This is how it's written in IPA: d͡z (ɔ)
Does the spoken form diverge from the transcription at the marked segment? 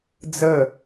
yes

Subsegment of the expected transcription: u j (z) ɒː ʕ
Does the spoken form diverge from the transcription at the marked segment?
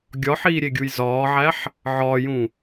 no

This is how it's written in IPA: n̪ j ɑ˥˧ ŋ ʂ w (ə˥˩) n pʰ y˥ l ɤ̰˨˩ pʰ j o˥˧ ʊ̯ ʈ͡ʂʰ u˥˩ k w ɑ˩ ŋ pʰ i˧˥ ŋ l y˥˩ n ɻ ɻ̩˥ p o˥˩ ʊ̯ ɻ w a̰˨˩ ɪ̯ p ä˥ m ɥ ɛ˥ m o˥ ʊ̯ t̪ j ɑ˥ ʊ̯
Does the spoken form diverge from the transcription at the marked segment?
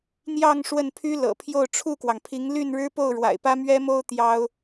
no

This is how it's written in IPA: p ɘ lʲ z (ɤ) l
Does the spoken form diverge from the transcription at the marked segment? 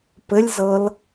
no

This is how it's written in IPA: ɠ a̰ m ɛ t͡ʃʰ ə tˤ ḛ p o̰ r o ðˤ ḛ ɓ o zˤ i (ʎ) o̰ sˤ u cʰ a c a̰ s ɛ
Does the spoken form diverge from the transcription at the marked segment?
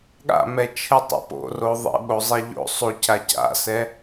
no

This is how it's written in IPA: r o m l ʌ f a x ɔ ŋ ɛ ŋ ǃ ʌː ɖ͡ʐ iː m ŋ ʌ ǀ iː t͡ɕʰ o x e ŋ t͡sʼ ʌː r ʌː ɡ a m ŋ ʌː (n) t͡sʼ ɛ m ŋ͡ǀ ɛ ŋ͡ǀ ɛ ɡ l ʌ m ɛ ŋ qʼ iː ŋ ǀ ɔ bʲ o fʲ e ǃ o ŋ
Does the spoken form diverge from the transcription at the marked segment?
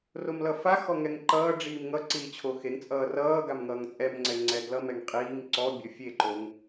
yes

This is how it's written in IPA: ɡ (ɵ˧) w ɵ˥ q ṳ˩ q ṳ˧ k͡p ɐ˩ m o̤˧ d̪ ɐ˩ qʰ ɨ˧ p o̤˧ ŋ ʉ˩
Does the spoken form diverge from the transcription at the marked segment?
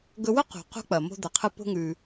no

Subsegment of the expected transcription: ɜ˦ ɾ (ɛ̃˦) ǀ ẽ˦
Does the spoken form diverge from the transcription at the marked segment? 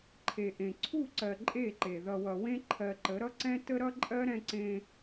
no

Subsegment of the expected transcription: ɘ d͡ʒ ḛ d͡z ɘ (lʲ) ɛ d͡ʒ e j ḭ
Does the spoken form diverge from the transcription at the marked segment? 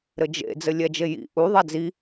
no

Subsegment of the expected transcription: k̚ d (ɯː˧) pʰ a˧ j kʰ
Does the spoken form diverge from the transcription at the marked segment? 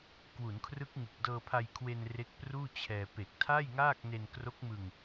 yes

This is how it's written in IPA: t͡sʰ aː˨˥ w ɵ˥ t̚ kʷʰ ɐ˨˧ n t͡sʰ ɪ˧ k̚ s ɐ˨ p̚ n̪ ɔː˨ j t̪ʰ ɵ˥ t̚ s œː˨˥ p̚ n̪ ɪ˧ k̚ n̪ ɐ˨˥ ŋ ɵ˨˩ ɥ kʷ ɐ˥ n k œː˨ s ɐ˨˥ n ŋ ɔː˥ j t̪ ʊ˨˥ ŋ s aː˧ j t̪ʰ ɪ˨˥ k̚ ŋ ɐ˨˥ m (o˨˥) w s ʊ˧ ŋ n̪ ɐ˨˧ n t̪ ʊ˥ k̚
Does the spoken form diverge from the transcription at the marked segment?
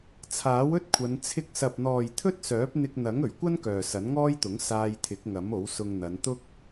no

